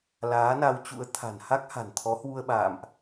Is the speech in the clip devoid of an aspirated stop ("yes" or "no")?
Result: no